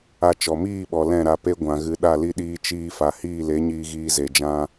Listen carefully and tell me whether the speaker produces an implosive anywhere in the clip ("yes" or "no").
yes